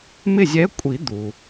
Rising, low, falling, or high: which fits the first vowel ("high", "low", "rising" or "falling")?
falling